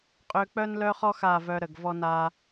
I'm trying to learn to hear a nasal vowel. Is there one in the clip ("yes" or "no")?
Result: no